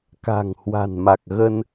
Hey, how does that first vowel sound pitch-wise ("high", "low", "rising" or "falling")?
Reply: low